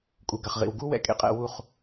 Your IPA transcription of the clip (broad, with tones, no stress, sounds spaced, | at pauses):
kʼ u˨ ɡ ɐ˨ χ ʁ ḭ˨ w ɡ u˦ w ɛ̰˨ kʼ ḛ˦ qʼ ɛ̰˧ w u˦˨ χ